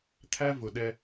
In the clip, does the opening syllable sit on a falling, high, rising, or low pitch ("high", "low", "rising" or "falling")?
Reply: high